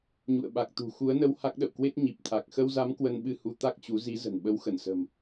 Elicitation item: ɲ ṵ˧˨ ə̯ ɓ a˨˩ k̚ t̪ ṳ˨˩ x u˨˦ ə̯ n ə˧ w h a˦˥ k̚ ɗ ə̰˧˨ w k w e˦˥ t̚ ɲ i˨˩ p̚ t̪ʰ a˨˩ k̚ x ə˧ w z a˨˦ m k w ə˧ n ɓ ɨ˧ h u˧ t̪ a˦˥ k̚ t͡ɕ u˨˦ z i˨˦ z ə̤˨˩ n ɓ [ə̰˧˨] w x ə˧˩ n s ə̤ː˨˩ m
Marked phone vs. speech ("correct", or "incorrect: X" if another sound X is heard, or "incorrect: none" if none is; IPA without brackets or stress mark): incorrect: ə˨˦